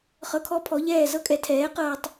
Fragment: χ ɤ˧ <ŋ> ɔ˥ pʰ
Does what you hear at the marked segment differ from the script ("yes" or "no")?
yes